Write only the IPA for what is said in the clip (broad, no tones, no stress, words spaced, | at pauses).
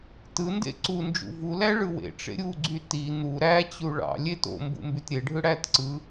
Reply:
tɯndḛ ǀund͡ʒṵ vulæ ɭɯwḛʈ͡ʂḛ ɾʲuɡ͡ǀy ti n̪u ɾæt͡ɕu ɭɑ̰ lʲet o̰ mbṵmbytɾʲeɖʱɯ ɽæt ǀɯ